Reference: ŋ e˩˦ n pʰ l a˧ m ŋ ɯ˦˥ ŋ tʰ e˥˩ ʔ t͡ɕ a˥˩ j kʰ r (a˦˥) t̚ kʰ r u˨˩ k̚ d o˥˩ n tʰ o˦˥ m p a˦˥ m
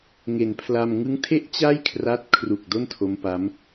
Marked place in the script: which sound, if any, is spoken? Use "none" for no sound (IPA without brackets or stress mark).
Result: a˦˥